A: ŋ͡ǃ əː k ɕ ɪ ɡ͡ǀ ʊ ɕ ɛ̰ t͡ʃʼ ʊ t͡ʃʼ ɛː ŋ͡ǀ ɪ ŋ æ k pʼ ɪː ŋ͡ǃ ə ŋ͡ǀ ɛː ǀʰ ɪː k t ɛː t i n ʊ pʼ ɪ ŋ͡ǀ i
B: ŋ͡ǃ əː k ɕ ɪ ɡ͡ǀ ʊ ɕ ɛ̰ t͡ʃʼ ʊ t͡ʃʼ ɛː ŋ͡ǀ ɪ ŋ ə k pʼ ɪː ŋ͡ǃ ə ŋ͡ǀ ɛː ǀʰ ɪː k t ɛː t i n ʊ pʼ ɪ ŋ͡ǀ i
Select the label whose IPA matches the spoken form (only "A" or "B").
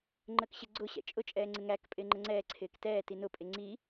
A